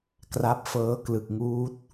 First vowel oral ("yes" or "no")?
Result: yes